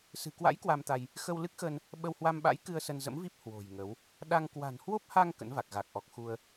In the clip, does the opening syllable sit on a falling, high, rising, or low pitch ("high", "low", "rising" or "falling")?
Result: low